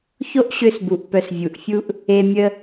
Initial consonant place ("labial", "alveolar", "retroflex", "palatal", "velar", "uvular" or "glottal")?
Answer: palatal